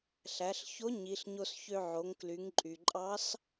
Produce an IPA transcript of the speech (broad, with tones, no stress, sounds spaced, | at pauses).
ɬ æ˩˧ ɬ ç o˧˥ ɲ i˩˧ ɬ ɲ o˧ s ç ø˧ ʕ o˩˧ ŋ k l y˩˧ ŋ ǃʼ y˩ ǃʼ ɑ˧˥ s